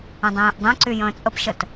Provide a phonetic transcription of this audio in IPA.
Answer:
ə̃dˤẽːʔdˤẽǀy jə̃ːt͡sʼəpʃət

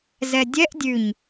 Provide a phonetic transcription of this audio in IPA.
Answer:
zɛdʲɛʔ dʲʉɲ

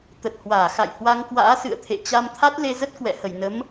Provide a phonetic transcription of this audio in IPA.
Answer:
t̪ə˨˩t̚hwaː˧˩xa̰˧˨j hwa˧ŋkwa̰ː˧˥sɨ̰˧˨ə̯t̪ʰḛ˧˨ t͡ɕa˧mt̪ʰa˦˥t̚ le˧zə˦˥t̚ kwɛ̰˧˨hə˧˩jnə˨˦m

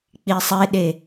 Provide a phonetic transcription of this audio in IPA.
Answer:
k͡pisˤeɗe

